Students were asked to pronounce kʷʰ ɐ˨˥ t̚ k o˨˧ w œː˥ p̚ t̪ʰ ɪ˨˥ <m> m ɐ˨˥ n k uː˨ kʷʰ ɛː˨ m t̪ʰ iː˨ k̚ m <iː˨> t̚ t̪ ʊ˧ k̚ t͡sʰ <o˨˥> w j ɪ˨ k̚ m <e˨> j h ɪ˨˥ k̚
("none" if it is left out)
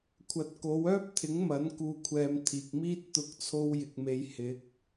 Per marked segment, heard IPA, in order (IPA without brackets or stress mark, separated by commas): ŋ, iː˥, o˧, e˨